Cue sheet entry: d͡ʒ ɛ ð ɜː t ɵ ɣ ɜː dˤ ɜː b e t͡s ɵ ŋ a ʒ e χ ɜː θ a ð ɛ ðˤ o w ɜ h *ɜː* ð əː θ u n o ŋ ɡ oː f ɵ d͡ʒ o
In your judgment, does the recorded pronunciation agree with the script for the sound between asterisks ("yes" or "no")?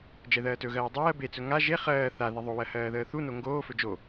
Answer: yes